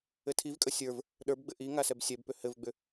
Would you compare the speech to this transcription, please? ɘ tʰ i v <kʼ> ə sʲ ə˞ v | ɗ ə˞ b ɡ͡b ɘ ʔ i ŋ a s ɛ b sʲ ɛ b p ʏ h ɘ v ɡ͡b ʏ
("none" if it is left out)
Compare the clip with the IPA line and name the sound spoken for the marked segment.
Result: kʼ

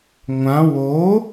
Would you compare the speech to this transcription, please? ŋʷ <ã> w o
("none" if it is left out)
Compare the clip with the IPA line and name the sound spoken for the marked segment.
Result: ã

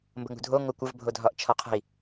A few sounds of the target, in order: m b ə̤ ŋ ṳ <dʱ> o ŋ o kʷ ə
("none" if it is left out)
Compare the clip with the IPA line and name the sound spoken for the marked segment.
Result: dʱ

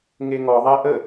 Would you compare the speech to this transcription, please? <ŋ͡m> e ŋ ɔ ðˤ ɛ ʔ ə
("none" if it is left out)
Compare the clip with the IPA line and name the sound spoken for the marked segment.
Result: ŋ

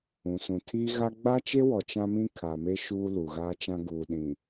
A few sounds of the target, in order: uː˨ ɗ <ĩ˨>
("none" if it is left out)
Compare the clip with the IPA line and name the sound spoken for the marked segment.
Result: ĩ˨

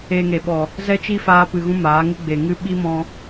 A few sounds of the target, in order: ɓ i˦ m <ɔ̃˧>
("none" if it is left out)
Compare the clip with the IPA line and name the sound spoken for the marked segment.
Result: ɔ̃˧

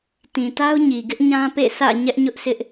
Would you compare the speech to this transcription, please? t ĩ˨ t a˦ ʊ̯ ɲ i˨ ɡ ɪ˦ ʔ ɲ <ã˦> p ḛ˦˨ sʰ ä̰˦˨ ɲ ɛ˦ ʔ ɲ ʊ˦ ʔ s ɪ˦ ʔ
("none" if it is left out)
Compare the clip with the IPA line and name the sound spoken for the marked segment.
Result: ã˦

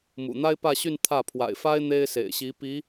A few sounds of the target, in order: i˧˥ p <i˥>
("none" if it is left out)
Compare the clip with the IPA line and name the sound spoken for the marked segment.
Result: i˧˥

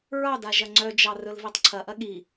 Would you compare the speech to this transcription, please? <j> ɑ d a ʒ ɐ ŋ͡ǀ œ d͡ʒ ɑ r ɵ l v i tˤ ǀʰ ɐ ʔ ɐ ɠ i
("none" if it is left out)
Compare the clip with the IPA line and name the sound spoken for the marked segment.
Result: ɹ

